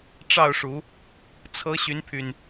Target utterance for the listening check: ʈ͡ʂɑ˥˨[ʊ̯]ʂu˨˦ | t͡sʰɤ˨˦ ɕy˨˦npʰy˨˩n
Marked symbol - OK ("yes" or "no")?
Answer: yes